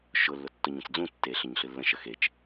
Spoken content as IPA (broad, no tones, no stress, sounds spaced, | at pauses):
ʃ ʊ lː ʊ tː ʊ ɲ ə̃ t͡s d͡z ũ tː e ɬ ə ɲ ɬ ɨ lː ə̃ ʃ ə x e t͡ʃ